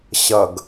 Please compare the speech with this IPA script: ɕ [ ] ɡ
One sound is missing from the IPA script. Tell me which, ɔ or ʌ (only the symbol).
ʌ